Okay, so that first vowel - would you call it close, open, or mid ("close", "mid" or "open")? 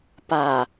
open